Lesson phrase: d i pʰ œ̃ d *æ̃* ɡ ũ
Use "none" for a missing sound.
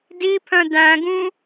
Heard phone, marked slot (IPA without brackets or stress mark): æ̃